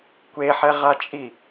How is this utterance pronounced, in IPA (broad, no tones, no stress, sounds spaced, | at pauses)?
kʷ e ħ ɛ ʁ a t͡ʃʼ i